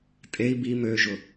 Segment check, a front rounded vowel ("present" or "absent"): present